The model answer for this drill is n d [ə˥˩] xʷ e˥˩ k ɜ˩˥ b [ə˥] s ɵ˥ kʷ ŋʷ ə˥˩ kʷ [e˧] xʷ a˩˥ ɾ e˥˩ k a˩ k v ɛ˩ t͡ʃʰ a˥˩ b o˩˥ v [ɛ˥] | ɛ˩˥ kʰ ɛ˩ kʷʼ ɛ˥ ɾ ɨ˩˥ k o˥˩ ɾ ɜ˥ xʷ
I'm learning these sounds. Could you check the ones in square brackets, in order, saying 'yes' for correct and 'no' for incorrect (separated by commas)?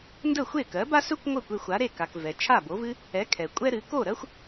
yes, no, yes, no